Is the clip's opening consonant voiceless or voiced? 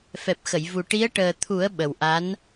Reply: voiceless